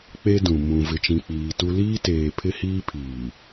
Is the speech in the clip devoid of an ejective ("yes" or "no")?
yes